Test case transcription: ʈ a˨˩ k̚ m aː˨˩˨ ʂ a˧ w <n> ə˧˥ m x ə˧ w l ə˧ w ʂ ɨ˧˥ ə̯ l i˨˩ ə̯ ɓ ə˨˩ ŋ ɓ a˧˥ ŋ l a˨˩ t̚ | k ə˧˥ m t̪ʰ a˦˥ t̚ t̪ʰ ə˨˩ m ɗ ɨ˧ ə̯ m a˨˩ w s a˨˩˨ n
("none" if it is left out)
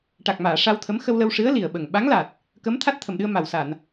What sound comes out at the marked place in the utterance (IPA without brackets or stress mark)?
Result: t̪ʰ